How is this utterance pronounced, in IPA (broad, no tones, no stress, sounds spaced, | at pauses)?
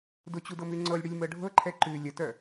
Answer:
d ʊ t͡ɕ u d ɤ m ʉ ŋ͡ǀ ɤ lʲ ɽ i lʲ m ɤ ɖʱ ɤ ǃʰ ɛ ǃ ʉ lʲ ə t œ